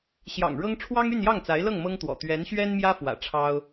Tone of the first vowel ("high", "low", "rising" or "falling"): low